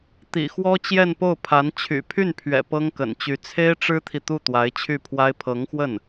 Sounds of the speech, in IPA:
t̪ḭ˨˩xwɔ˥ t͡ɕjɛ˥˧npo˥˩ʊ̯pʰa˧˥n t͡ɕʰy̰˨˩pʰy˥˩npʰɥɛ̰˨˩ pɤ˥ŋkə̰˨˩nt͡ɕy˧˥ t͡sʰe˥ɪ̯ʈ͡ʂɻ̩˥t̪ʰi˨ t̪u˥˩t̪wa˧˥ɪ̯t͡ɕʰy˥˩pʰwa˥ɪ̯ pʰɤ˧˥ŋxwə˥˩n

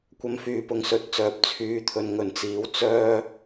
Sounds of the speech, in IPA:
kʷɐ˧mfyː˨˧pʊ˨˧ŋ sɵ˨˥t̚t͡sœː˨p̚ t͡sʰyː˨t̪ʰɵ˨n ŋɵ˨nt͡siː˨˥w t͡sœː˥

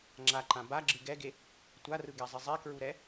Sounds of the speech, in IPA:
ŋ͡ǁaǃã baɡ͡ǁɯ ɡɛɡe | tʷarɯɡɛzˤi zˤekɹuɾɛ

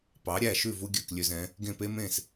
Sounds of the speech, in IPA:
pɑ˩˥ɾʲæ˥˩ʃʉ˥˩vu˧ ɡʲœ˥˩klʲø˧zɛ̃˩˥ | ɡẽ˥˩pe˥ mẽ˥˩s

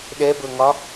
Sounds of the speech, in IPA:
ɗɛbɤŋɒ

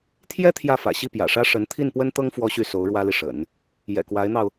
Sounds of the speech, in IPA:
t̪ʰjɛ˥ t̪ʰjä˥˩fä̰˨˩ɕi˥˩ pjä̰˨˩ʂä˥ ʂə˧˥n t̪ʰi˥˩npwə˥nt̪ɤ˥ŋ fwɔ˥ɕy˥˩so˧˥ʊ̯ ɻwä˥li˨ʂə̰˨˩˦n | jɛ̰˨˩kwa˧˥ɪ̯n̪ɑ˧ʊ̯

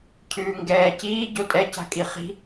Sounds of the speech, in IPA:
cʰʉːŋɡɛː ciː ɟotʼɛ ca̤kʼiχi̤

